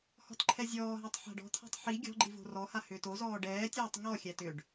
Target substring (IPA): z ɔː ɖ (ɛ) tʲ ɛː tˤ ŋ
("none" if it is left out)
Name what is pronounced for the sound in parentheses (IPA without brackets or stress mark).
ɛː